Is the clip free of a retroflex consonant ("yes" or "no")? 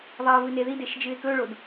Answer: no